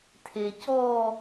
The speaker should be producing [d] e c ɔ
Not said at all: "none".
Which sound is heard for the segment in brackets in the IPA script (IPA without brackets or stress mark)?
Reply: tʰ